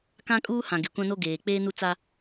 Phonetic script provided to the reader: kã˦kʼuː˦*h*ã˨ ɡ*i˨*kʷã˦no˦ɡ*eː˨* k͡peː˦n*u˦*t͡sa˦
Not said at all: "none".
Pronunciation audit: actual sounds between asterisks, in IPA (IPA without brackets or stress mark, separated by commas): h, ɪ˨, eː˨, u˦